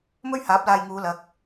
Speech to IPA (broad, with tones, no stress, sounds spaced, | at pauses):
m ɵ˥ ɥ h aː˨˥ p̚ l aː˧ j ŋ uː˨˧ l ɐ˨˥ k̚